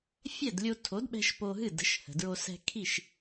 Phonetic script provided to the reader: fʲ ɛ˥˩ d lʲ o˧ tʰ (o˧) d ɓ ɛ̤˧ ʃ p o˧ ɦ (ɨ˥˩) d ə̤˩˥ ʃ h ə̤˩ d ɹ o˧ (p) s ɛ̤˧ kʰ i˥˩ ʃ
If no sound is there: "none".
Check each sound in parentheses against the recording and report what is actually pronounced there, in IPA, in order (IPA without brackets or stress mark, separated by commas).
o˩˥, ɨ˥˩, none